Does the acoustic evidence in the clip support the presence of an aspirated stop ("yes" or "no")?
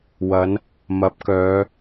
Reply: no